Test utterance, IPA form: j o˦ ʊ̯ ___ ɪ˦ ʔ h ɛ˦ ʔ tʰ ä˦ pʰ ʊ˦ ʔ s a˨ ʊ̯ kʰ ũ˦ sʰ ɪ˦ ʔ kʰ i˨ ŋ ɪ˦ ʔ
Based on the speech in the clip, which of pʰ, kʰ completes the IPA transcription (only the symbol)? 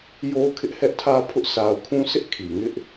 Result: kʰ